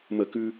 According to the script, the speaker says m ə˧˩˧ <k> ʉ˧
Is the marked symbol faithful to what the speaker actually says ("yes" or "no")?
yes